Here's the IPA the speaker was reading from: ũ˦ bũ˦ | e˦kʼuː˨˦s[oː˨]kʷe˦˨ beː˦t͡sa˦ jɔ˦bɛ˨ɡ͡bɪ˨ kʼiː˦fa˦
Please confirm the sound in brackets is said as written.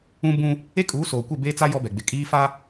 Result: yes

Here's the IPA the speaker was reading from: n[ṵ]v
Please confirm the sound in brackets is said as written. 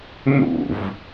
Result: yes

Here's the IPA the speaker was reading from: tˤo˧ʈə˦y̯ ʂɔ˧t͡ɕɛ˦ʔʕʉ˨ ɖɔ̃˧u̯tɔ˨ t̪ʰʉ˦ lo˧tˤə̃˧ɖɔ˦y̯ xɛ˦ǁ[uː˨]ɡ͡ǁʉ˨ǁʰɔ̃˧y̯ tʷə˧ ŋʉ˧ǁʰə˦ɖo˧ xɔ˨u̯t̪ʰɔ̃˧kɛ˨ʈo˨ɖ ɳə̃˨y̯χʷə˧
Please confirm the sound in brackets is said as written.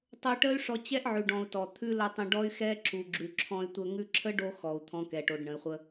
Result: no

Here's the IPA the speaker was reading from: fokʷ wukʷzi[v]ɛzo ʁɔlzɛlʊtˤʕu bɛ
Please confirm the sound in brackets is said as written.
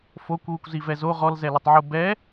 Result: yes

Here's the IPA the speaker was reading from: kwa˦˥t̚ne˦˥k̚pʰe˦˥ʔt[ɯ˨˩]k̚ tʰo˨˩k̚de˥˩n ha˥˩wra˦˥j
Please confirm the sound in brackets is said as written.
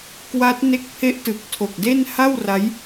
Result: yes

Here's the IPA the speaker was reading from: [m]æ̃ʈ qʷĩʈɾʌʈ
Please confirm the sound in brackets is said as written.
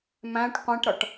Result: yes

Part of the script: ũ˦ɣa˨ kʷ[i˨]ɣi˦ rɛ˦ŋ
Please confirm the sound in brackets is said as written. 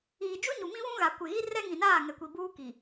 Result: no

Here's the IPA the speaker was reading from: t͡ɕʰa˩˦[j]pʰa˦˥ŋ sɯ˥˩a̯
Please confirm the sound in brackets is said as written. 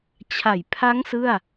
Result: yes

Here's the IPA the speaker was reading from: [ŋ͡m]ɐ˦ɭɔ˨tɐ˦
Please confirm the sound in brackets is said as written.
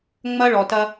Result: yes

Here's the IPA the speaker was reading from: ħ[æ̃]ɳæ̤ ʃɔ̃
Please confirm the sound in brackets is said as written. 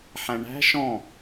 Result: yes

